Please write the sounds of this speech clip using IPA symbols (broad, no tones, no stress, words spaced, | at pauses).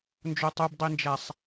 nd͡ʒotˤubdˤind͡ʒæsˤ